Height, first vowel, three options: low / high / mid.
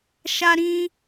low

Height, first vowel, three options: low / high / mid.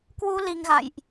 high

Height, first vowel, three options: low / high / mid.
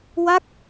low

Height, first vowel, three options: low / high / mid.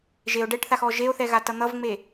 mid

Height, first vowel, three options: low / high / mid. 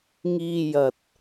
high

